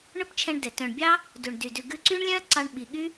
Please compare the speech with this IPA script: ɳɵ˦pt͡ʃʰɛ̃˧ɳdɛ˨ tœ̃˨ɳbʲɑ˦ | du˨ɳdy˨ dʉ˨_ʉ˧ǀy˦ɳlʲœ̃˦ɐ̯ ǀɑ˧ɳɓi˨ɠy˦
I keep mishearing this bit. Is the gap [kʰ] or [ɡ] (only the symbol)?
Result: ɡ